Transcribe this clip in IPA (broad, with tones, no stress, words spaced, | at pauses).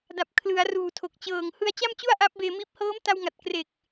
da˨˩p̚kʰlɯ˩˦a̯ ruː˨˩tʰo˨˩k̚t͡ɕɤː˨˩ŋ hɯ˧a̯t͡ɕa˥˩mt͡ɕu˥˩a̯ ʔa˦˥p̚beː˧ miː˦˥p̚ hɤː˦˥mta˧wŋa˨˩t̚ kre˨˩k̚